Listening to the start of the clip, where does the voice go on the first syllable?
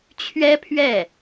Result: high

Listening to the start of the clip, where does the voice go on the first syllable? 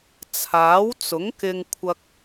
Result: rising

